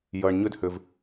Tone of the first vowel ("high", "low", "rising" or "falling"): low